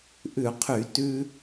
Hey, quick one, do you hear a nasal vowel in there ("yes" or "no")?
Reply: no